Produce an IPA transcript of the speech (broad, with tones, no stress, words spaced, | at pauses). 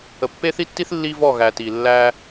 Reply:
ə˨pːe˦θi˦tːi˦θ lːi˦vɔ˦˨ ɣæ˨ti˨ lːæ˦